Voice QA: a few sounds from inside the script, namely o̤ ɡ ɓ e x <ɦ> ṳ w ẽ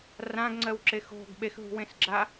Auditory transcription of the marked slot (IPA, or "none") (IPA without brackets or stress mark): ɦ